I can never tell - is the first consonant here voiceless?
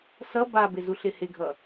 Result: yes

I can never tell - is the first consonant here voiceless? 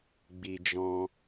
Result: no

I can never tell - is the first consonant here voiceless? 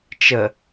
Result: yes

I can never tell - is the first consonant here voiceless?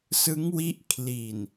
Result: yes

